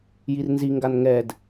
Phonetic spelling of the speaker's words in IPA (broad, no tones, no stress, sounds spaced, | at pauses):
j i r n z i ŋ ɡ a n ŋ ɛ d